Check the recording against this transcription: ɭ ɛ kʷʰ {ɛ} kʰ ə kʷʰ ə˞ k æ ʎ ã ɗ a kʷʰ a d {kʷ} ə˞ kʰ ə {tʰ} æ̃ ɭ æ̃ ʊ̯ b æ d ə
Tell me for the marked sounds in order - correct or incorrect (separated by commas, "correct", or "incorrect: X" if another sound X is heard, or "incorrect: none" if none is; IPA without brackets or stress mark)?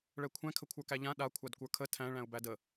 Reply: incorrect: ɛ̃, correct, correct